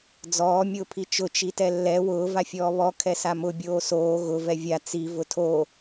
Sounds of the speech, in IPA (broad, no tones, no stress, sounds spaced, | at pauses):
d͡z ɔː mʲ ʊː pʰ i t͡ʃ ʊ t͡ʃ i t ɛ lː ɛ w ʊː v a fʲ ɔː β ɔ kʰ ɛ s a m ʊ bʲ oː s oː ɣ ʊ v ɛ vʲ a t͡s i v ʊ tʰ o